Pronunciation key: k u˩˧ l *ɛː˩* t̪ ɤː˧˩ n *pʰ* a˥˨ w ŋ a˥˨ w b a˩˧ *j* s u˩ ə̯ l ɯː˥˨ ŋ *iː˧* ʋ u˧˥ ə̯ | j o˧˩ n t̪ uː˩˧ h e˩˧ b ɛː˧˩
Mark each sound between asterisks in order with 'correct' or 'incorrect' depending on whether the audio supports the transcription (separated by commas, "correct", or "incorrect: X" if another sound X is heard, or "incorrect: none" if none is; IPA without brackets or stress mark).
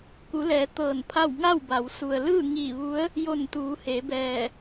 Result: incorrect: ɛː˩˧, correct, incorrect: w, incorrect: iː˧˩